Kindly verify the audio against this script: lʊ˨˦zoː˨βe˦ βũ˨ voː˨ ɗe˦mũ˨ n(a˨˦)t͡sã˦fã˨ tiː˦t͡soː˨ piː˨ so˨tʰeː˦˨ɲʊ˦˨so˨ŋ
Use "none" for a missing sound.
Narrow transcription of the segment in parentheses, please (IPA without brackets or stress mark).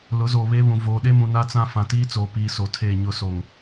a˦